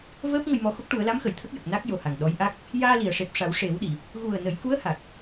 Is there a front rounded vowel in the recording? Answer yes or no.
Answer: no